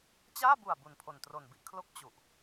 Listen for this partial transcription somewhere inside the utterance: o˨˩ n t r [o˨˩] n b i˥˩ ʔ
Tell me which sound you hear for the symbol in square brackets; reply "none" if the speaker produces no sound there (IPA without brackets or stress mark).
o˨˩